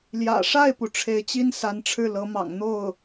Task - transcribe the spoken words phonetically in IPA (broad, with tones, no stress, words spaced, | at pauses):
ljä̰˨˩ʂa˥˩ɪ̯pu˩ ʈ͡ʂʰe˧˥ɪ̯t͡ɕi˥n sa˧˥nʈ͡ʂʰɻ̩˥˩ lɤ˧˥mɑ̰˨˩ŋ n̪o˥˩ʊ̯